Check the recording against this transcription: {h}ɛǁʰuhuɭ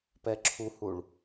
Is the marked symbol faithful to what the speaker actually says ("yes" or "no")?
no